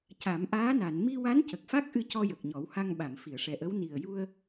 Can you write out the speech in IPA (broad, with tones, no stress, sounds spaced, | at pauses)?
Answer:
c a˨˩˦ m ʔ aː˧˥ n a˨˩˨ n m i˧ w a˧˥ n c ə˨˩ k̚ f a˦˥ k̚ ʔ ɨ˧ c ɔ˧ j ə˨˩ k̚ ɲ ɔ˨˩˦ w h a˧ ŋ ɓ a˨˩˨ m f i˨˩˨ ə̯ ʂ ɛ˨˩ ʔ ə˧˥ w n i˨˩ ə̯ j u˧ ə̯